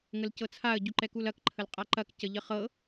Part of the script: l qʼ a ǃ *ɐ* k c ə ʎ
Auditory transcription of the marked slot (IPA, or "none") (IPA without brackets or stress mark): ɐ